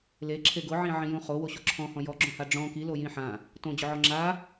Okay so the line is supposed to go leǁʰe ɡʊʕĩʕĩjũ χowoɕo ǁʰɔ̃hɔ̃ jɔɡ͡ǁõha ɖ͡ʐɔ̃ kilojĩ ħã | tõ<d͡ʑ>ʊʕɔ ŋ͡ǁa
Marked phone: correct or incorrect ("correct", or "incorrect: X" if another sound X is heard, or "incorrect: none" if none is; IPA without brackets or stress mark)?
correct